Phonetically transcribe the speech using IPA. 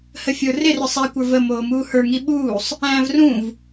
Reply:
h ə fʲ ə˞ r ɪ r ə˞ sˤ æ kʷ ə˞ v ə m oː m uː h ə˞ ŋ i ɓ uː sˤ | æ̃ː v r ũ v

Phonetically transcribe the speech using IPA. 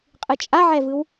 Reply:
qʼ ɯ t͡ʃʼ a ʕ ɛ v ɯ w

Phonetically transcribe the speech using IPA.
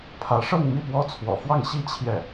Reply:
pʰ ä˧˥ ʂ ɤ˥˧ ŋ m i˥˩ p w ɔ˥ t͡sʰ w ɔ̰˨˩ f w ɑ˥˩ ŋ ɕ i˥ t͡ɕʰ j ɛ˥˩

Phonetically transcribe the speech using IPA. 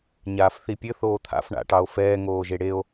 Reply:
ɲ aː f θ i pʲ ɘ θ oː t̪ʰ a̰ f ɳ a̰ ʈ ɑ o̯ f ɛː ŋ oː ʒ e ɽ e o̯

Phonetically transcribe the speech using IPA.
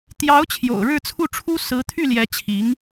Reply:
t̪ j ɑ˧˥ ʊ̯ t͡ɕʰ j o̰˨˩ ʊ̯ ɻ ɻ̩˥˧ t͡sʰ u˥˩ ʈ͡ʂʰ u˥ s ɹ̩˧˥ t̪ʰ y˥˩ l j ɛ˧˥ t͡ɕʰ i˧˥ ŋ

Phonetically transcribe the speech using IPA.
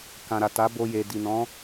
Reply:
k ã˨ ɾ a˨ t a˨˦ b o˧ j e˨ d i˨ n ɔ̃˨˦

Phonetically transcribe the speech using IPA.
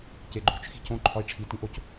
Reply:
c e ɡ͡ǃ o̤ t͡ʃ x i̤ c õ ǃʰ ɒ i̯ ʈ͡ʂʰ i t ĩ ʔ o c

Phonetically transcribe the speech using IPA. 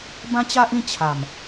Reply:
b ã˦ t͡ɕ a˦ ʔ ĩ˥˧ t͡ɕʰ a˨˩ m

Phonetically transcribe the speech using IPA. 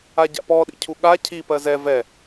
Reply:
a ɟ a̰ p ɔ ɗ ḭ cʰ u ɠ a cʰ i p ɜ z ɛ v ɛ

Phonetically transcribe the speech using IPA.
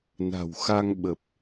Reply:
n a̤˨˩ w x a˧ ŋ ɓ ə˨˩ p̚

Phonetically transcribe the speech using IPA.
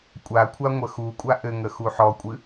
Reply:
kʷʼ a kʷʰ a ŋʷ ə x u kʷʼ a ʔ ɘ ŋ ə x u ħ ɔ kʷʼ ɨ

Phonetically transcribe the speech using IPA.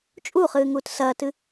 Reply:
t͡ʃʼ u χ ɨː ŋ uː t s ɐː t ɨ

